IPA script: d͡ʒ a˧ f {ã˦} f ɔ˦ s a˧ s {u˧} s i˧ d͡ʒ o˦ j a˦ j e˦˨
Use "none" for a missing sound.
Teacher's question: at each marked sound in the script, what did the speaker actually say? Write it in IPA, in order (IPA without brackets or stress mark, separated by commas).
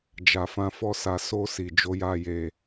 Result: ã˦, o˧